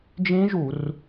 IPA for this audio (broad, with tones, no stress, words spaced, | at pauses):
d͡ʒĩ˦˥ʒu˧˩˧r